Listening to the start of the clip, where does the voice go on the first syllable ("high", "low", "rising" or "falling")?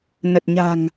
low